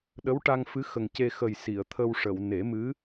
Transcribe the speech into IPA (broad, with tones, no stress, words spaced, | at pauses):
ɗə˧˥wʈa˧ŋ fɨ˧˥xə˨˩ŋce˧ xə˨˩j si˨˩˨ə̯t̪ʰə˧wʂə˨˩˨w ne˨˩˦mɨ˧˥